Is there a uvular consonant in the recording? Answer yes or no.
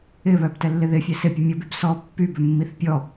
no